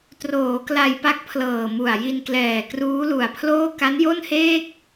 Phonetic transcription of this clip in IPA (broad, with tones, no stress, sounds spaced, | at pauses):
t r oː˩˦ k l a˧ j p a˦˥ k̚ pʰ l ɤː˨˩ m u˨˩ a̯ j i˧ n k l ɛː˨˩ k r uː˦˥ l u˨˩ a̯ pʰ l oː˥˩ k a˦˥ n j o˥˩ n h eː˥˩ k̚